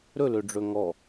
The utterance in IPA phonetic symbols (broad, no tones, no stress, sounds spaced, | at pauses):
ɾ ɵ l ø ɖ͡ʐ ɵ ŋ ɔ